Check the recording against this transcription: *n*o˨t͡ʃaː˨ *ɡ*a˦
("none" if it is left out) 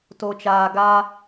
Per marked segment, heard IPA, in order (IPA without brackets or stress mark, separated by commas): t, ɡ